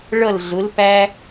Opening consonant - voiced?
yes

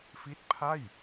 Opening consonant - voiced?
no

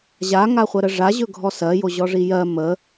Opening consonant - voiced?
yes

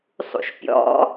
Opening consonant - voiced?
no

